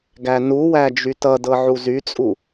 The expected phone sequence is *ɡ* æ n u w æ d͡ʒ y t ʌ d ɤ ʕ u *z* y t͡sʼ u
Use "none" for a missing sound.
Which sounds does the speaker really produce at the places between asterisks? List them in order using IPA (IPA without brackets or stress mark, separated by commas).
ɡ, z